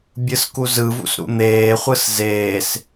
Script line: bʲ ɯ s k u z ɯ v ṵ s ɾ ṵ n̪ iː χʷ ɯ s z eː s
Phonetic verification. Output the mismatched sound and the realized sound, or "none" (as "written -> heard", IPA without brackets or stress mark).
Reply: iː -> eː